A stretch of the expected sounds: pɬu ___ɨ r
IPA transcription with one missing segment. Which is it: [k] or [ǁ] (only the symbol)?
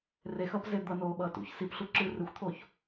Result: ǁ